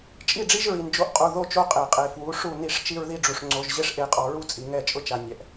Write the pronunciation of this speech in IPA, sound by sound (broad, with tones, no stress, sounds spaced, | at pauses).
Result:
t͡ʃʼ i˦˨ ɖ͡ʐ i˦ ʒ ɹ i˨ n d͡ʒ o˦ ʔ qʼ u˨ ð o˦˨ t͡ʃ o˦ qʼ e˨ qʼ e˨ f w u˨˦ ʂ u˦˨ n i˦ ʂ t͡ʃ i˦ ɹ ð i˦ ɖ͡ʐ u˨ ʂ ŋ͡ǀ o˦ ʒ ʑ e˦ ʂ ʔ e˨˦ qʼ ɔ˨ ɹ u˦ t͡sʼ i˨ ŋ ɛ˦˨ t͡ʃʼ ʊ˦ t͡ʃ a˨ nʲ ɛ˨ ʔ